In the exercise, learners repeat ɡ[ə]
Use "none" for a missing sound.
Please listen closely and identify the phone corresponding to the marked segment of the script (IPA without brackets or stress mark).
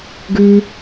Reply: ʉ